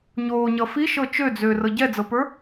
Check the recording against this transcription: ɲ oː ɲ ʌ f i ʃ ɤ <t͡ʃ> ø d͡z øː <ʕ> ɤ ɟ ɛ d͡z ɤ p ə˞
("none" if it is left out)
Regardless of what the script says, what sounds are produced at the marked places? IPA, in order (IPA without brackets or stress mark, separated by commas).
t͡ʃ, r